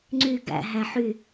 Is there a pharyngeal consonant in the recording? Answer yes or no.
yes